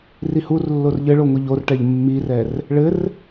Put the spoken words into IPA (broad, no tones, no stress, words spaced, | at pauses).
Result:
rihurlːor ʎɘɭo ŋʷiʎorʈɛʎ mːirɛr | ɭɘr